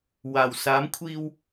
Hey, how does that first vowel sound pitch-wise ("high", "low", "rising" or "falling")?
low